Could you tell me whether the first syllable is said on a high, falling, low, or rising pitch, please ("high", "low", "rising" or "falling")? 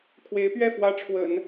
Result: rising